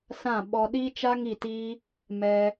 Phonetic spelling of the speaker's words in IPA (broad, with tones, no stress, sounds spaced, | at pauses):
s ã˦˨ ɓ ɔ˧ ɗ i˦ t͡ʃ a˦ ŋ i˦˨ t i˦ | m ɛ˧